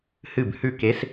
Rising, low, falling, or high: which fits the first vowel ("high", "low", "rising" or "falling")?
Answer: falling